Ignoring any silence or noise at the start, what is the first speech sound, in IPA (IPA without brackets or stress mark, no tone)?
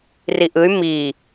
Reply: r